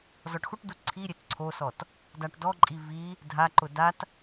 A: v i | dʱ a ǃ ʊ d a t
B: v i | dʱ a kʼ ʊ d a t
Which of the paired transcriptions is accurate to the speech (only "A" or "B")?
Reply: A